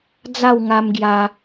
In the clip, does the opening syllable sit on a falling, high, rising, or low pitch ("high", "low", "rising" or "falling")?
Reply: falling